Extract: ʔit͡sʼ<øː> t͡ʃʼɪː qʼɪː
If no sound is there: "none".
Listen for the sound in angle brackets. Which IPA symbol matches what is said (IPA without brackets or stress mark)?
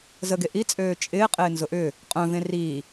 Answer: øː